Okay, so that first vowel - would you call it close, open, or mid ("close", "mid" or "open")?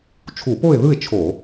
close